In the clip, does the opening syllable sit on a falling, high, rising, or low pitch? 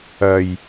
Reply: low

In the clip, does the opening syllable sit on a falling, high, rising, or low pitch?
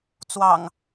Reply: low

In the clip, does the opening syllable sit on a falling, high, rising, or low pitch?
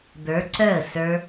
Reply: rising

